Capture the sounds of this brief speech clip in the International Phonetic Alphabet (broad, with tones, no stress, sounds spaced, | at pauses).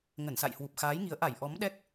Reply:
ŋ ə˧˩ n s a̰˧˨ j h w u˨˩ p̚ x aː˨˦ j ŋ i˨˦ ə̯ ʔ a˧˩ j ʔ ɔ˨˦ m ɗ ɛ˦˥ k̚